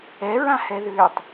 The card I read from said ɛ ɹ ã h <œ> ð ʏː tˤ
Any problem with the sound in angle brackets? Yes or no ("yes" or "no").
yes